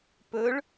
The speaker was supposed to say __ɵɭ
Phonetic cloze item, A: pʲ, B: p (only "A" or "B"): B